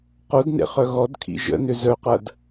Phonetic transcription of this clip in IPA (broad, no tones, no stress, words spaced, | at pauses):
qodnḛ χœɣɔdkʰḭ ʒə̰nʏ zœqɐd